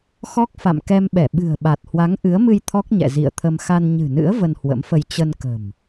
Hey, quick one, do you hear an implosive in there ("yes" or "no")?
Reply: yes